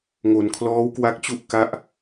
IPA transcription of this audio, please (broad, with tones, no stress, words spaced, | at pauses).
ŋo˩˦nkʰlɔː˦˥wkwa˦˥k̚t͡ɕu˥˩ʔ ka˦˥ʔ